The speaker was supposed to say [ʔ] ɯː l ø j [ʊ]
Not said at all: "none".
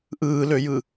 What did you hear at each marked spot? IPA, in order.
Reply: ʔ, ɯ

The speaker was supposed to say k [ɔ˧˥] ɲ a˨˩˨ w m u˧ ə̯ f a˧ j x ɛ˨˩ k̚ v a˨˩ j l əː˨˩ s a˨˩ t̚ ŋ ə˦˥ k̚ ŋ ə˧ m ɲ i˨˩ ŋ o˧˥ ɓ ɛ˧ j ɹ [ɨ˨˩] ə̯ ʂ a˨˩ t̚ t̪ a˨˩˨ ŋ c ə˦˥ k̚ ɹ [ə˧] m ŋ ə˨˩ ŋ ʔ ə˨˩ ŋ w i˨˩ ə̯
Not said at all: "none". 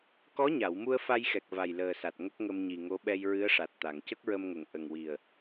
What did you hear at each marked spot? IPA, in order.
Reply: ɔ˧˥, ɨ˧˥, ə˧

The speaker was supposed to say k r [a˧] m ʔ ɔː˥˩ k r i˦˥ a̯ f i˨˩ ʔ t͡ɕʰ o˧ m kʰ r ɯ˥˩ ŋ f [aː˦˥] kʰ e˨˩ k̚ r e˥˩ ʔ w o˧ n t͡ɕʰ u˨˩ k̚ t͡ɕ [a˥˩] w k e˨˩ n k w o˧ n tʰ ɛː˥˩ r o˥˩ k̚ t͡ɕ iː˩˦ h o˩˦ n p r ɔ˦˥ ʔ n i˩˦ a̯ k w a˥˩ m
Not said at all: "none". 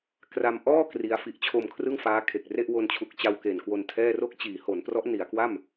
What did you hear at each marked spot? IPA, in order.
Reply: a˧, aː˦˥, a˧

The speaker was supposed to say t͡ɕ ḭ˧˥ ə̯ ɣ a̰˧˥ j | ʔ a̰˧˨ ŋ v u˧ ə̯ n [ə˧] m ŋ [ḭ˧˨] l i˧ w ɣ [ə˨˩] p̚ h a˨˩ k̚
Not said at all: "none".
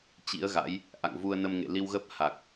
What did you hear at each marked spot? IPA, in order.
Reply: ə˧, ḛ˧˨, ə˦˥

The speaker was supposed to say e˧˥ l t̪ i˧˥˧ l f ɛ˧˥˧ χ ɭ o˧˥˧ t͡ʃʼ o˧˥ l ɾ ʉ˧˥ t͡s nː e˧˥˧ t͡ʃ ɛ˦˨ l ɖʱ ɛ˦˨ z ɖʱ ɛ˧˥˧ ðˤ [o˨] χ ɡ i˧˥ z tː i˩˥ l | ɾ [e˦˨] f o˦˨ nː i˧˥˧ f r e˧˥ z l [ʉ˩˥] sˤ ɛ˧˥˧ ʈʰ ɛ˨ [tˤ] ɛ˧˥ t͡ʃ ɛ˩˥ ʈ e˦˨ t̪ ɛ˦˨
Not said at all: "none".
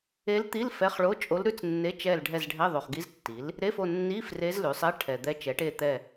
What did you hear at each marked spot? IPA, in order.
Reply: o˨, e˧˥˧, ʉ˩˥, d̪

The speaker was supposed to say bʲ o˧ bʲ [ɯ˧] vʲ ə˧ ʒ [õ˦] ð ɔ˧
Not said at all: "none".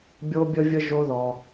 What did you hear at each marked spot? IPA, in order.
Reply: ə˧, o˦

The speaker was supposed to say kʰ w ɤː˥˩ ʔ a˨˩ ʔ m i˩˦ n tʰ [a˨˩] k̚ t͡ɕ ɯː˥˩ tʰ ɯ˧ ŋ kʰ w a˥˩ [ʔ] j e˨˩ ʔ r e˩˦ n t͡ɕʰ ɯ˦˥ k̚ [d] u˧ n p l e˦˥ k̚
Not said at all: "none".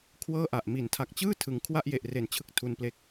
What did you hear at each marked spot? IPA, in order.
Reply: a˨˩, ʔ, tʰ

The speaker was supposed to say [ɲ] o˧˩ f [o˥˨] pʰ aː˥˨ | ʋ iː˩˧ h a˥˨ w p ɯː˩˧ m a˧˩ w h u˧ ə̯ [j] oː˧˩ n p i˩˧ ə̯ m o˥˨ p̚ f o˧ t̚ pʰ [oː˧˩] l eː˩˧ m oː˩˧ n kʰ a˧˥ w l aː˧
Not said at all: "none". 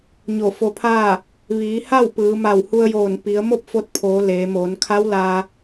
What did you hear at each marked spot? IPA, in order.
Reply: ɲ, o˧, j, oː˩˧

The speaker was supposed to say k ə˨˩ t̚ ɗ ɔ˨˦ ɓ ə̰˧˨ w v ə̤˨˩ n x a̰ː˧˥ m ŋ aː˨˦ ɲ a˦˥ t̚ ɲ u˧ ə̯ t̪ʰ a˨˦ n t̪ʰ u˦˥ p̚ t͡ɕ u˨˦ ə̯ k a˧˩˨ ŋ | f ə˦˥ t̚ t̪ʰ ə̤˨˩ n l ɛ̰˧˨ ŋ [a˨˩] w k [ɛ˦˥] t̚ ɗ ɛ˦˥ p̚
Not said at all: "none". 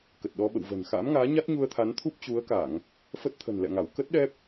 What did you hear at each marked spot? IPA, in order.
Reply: a˧˩, ə˦˥

